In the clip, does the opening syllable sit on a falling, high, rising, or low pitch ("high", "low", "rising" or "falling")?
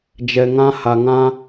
low